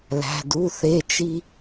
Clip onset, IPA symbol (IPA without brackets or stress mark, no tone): l